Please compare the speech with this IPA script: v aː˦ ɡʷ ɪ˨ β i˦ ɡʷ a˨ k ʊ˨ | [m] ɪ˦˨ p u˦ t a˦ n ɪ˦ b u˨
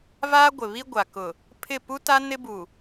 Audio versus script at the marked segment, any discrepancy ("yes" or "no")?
yes